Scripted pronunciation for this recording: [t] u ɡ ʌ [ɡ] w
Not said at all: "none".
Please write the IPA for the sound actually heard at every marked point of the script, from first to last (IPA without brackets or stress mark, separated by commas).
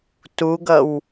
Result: t, none